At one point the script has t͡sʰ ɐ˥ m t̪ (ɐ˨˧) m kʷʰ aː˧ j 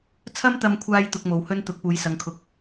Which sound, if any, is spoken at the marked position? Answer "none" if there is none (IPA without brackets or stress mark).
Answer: ɐ˧